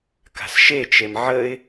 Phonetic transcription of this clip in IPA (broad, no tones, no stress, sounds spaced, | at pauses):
k a̤ s ʃ e t͡ʃ e m ʕ ə ɪ̯